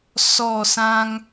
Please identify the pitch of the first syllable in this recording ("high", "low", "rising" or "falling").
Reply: falling